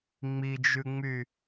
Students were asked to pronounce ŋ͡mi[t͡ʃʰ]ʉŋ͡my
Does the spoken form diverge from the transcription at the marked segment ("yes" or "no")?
yes